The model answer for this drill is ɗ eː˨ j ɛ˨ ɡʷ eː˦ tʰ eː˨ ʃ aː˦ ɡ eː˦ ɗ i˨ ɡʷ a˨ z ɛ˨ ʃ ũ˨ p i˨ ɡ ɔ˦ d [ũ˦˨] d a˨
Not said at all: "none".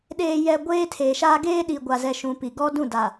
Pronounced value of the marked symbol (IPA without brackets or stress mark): ũ˦˨